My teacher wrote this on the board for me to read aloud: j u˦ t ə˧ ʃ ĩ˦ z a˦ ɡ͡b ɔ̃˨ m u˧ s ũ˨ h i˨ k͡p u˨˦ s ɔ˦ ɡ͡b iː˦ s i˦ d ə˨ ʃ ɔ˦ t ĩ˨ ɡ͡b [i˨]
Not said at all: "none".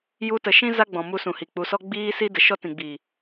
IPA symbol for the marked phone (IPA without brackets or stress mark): iː˨